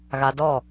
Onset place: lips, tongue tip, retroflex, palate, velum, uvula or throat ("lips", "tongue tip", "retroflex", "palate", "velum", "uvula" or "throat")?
velum